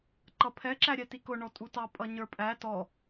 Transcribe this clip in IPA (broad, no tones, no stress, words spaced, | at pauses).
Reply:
ǃʌpʰɛ ǁæɾʲætikʊ ɳɔtʼutɑ pʼʌɲə˞pʼæ tɔ